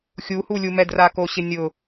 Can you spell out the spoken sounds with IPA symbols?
xʲuhulʲumɛ drakoɕɪnʲʊ

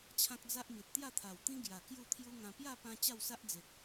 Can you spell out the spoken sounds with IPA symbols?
t͡ɕʰã˦k̚d͡za˦ʔmi˨t̚ t̪ja˥˧t̪ʰa˨˩wt̪ĩ˦ ɡja˨˩ kju˥˧t̪ʰju˦ŋã˧ pja˥˧pã˧ t͡ɕa˥˧wsa˦ʔd͡ze˨k̚

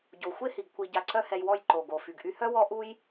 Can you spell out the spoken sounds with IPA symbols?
ɟo˨xʷe˦hi˨ɡ kʷi˨ ɟa˧ǀœ˦hɛ˧jwɔ˦˨j ǃo˨ɡo˨ fy˨ɡʔy˧hœ˦wɔ˦ ʔu˦j

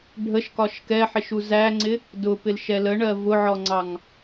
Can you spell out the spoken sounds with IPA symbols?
ɖʱəʃkɒʃ kɛħɪʃ uzæŋ͡ǀɪ | dʊpɪl ʃɛləɳɜ vʊʕɔŋ͡ǀɑŋ

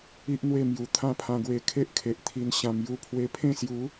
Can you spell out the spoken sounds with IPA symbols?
i˦ʔn̪we˥˧ mju˨˩ t̪ʰã˦pʰã˧ɡwe˧ kʰe˦ʔkʰe˨ʔt̪ʰi˧n ɕã˧mju˦ pʰwe˧pʰẽ˥˧sju˨˦

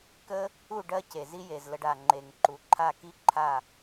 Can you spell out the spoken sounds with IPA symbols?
kə˦ | u˦˨ ɖɜ˧ ce˨zi˦je˨zlə˧ɖ a˨ŋ͡ǃe˨ŋǃu˨ ǃʰa˦˨ ki˦ ǃʰa˦˨

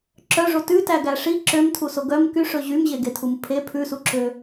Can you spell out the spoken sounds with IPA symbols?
ǁœʐo tʉtæɡæ ʂi ǁømtʰuso ɡœm kyʂɵ ʑymʑeɡetʰum pʰe pʰʉsuǁø

